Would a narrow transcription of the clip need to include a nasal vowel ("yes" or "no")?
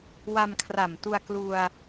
no